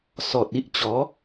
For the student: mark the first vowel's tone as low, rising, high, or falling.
low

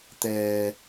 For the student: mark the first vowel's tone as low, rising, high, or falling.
low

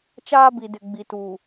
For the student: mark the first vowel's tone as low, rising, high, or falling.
high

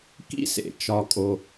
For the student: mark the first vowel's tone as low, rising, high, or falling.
high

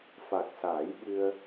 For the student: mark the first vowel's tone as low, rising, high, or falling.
low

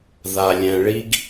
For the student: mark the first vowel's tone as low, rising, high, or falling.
low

